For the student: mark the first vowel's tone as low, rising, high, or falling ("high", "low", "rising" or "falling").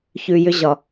low